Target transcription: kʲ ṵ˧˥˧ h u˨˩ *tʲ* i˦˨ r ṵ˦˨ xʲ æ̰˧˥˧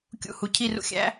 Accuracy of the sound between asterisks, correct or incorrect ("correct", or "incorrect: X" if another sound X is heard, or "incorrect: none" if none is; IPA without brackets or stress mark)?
incorrect: cʰ